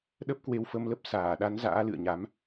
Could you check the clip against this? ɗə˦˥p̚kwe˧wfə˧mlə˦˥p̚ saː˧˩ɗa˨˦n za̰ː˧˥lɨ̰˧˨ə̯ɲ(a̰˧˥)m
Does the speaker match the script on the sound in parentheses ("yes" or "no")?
no